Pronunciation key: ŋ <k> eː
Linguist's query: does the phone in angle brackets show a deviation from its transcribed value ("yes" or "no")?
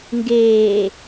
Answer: yes